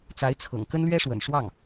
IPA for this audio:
t͡s a˧˥ ɪ̯ t͡sʰ ɤ̰˨˩ ŋ k ə˥ n l ɥ ɛ˥ ʂ w ə̰˨˩ n ʂ w ɑ˥˩ ŋ

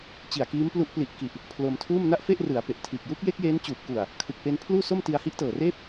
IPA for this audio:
t͡ɕ i˨˩ a̯ k iː˦˥ m p l u˦˥ ʔ p l i˨˩ ʔ k i˨˩ ʔ | pʰ l o˧ m tʰ uː˥˩ m n a˥˩ ʔ f e˥˩ ʔ r ɯ˩˦ a̯ p e˨˩ ʔ tʰ iː˨˩ k̚ j u˦˥ k̚ j e˦˥ k̚ j eː˦˥ n t͡ɕ uː˨˩ p̚ k u˨˩ a̯ | kʰ ɯ˨˩ k̚ p e˧ n pʰ l uː˥˩ s o˥˩ m t i˧ a̯ h i˦˥ ʔ t ɤː˨˩ r eː˥˩ p̚

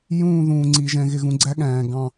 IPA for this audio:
j ũː˦˨ ð ũː˨ ŋ͡ǀ i˨ ʒ ɛ̃˨ ɣ ɪ˨ ɣ ũ˨ ɡ͡ǀ æ˦ ɠ æ̃ː˨ ɡ ɑ̃˨

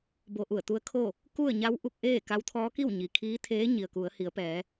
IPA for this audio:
b o˧ ʔ u˧˩ ə̯ t̪ u˧˥ ə̯ kʰ o˥˨ | k u˥˨ ə̯ ɲ a˧˥ w ʔ u˧ k̚ ʔ eː˥˨ k a˧˥ w t̪ʰ ɔː˧˥ k i˥˨ w ɲ i˩ kʰ iː˧˥ t̪ʰ eː˧˥ ɲ i˩ ə̯ k u˩˧ ə̯ h i˩˧ ə̯ p ɛː˩˧

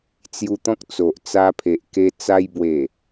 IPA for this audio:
t͡s j u˧ t̪ ɔ̃˦ k̚ t͡s o˨ ʔ t͡s a˧ pʰ e˨ ʔ k e˧ t͡s a˧ j b w e˨˩

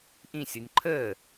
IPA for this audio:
ʔ ĩ sʲ o nʲ ǃʰ əː

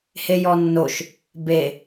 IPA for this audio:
h e j ɔ nː o ʃ | b e

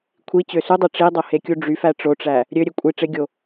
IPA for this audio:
kʷʰ i t͡ɕ ø s u dˤ e ʈ͡ʂ i dˤ o h e kʲ u ɖ͡ʐ y f æ ʈ͡ʂ o ʈ͡ʂ æ | ɾʲ ø ɾʲ e kʷʼ i ʈ͡ʂ e ɡʲ o

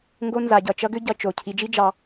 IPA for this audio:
ŋ ɡ o˦ n z a˧ ɟ ʌ˧ t͡ʃ ʌ˦ ɡ ʏ˦ ɟ ʌ˧ t͡ʃ o˨ cʰ i˨˦ d͡ʒ i˦ d͡ʒ ɑ˧

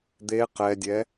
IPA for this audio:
d̪ e q ɛ dʲ ɛ

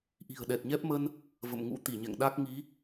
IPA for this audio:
ʔ i̤˨˩ ə̯ ɗ ɛ˨˩ t̚ ɲ ɛ˦˥ p̚ m ə˧ n | v ə̰˧˨ m ŋ ṵ˧˥ t̪ i˧˩ ɲ ɛ̰˧˨ ŋ ɗ a˦˥ k̚ ŋ i˨˦

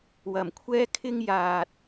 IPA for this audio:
w ɐ˨˩ m kʷʰ ɛː˥ kʰ ɪ˥ ŋ j aː˨ t̚

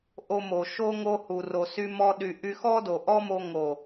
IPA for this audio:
ʔ o˧ m o˨ ʃ o˧ ŋ o˧ h u˨ r o˨ s y˦ m ɔ˦ ɗ y˧ ʔ y˧ x ɔ˦ d o˨ ʔ ɔ˦ m o˧ ŋ o˨

